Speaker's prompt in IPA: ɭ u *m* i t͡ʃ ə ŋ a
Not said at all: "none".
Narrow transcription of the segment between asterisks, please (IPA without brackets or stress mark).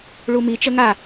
m